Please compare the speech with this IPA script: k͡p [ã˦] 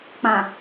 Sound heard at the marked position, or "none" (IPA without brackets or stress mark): ã˨